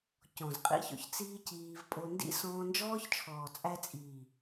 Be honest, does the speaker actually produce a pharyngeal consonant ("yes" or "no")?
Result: no